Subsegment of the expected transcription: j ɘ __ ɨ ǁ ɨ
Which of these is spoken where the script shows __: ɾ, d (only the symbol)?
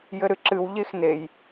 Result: ɾ